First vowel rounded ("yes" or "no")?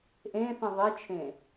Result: no